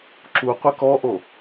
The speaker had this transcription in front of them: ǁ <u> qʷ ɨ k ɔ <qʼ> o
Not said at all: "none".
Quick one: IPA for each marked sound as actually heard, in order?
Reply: u, ʔ

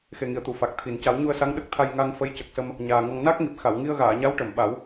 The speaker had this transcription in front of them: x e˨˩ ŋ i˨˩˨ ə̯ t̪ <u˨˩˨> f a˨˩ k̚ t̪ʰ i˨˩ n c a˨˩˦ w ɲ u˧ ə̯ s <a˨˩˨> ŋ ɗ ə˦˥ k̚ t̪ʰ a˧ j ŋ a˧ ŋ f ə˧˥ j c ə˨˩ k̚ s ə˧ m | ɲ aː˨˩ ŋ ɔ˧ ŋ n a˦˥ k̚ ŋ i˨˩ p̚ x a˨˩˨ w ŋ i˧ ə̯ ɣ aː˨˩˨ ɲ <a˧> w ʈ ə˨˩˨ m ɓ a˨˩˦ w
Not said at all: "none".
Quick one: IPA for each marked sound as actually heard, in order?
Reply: u˨˩˨, a˧˥, a˧˥

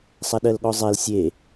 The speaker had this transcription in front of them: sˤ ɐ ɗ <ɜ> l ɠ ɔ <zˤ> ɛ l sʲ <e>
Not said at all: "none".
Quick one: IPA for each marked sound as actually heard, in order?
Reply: ɜ, zˤ, e

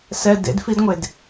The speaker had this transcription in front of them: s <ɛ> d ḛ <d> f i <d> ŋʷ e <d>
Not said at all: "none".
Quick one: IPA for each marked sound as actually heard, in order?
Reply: ɛ, d, d, d

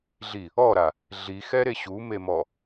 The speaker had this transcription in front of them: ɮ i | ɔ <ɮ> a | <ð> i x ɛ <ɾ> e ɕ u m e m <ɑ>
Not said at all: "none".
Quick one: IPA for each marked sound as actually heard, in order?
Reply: ɾ, ɮ, ɾ, ɔ

